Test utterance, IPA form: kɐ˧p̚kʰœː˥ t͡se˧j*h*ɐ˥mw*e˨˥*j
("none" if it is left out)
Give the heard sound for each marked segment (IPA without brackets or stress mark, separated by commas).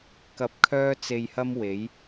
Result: h, e˨˥